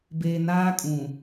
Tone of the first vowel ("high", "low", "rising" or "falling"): low